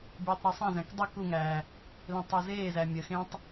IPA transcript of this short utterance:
bʲ uː tˤ ɾ ə˞ sˤ æ̃ z æ̃ k dˤ e k u ŋ æː | l ẽ tˤ ɜ z eː z æ mʲ ə x ẽ tˤ

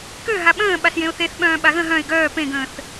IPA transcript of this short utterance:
k ø ɦ a ɓ ə̃ː ɓ a s j ẽ ʊ̯ θ e θ ɓ œ̃ː ɓ a ɣ ə̃ ɦ œ̃ ɪ̯ ɡ œː p ẽ ɡ ə̃ː θ

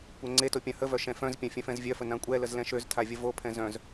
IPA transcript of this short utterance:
kʷ ɛ ŋ͡ǀ e t o pʲ ã h ə v œ ʃ ɛ̃ f œ̃ z pʲ ã fʲ œ̃ f ɛ̃ z vʲ œ f ə n ã kʷʼ ɛ l ə z l ɛ̃ ʃ ø z tʰ a vʲ ə v o pʰ ɛ̃ z œ̃ z

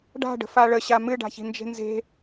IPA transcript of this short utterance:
ɖ a̤ ɖ ə̤ f a ɭ ə ɕ a m ɨ ɖ a̤ ç i̤ n d͡ʒ e̤ n z e̤

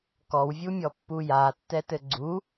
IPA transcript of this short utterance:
k ɔ w vʲ u mʲ ɔ pː u j a tː ɛ t ɘ ɡ͡ǀ u

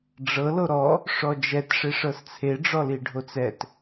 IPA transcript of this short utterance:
ɖ͡ʐ ɤ l o ɾ ɔ | ʂ ɔ d͡ʒ ɛ t ʂ e ʂ ɤ s t͡sʰ e ɖ͡ʐ ɔ l i ɖʱ o t͡s ɛ t

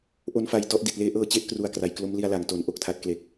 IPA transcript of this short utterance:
ʔ o˧ n f a˨˩ j t ɔ˥˩ ʔ d i˨˩ t̚ l eː˦˥ ʔ ɤː˧ t͡ɕ e˥˩ ʔ k r u˨˩ a̯ k r a˩˦ j k l o˦˥ m l i˧ a̯ l a˩˦ ŋ t o˩˦ n ʔ o˨˩ k̚ tʰ a˦˥ t̚ k l e˨˩ k̚

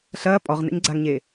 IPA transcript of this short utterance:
ɬ ɐː pʼ ɔ ʁ n ɛ̰ ɲ ɡ͡ǀ a ŋ ɲ eː

